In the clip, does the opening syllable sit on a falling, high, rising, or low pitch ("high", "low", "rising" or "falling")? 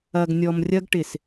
low